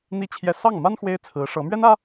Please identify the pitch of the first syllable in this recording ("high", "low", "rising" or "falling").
high